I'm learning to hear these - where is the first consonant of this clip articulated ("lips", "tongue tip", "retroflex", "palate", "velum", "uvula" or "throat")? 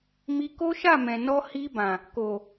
lips